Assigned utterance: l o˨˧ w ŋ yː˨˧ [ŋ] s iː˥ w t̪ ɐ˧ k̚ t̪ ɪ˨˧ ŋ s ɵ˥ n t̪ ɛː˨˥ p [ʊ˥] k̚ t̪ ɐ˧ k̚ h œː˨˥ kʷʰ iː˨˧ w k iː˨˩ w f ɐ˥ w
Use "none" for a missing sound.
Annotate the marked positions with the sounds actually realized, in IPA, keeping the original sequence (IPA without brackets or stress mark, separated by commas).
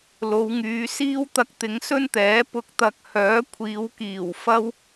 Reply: none, ʊ˥